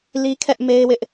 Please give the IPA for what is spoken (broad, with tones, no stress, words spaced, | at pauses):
li˦kʰɛ˦ʔme˦ɪ̯wɪ˦ʔ